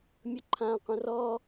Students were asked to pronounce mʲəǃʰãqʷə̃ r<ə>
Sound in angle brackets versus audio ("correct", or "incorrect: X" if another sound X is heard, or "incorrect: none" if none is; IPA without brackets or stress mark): incorrect: ɔ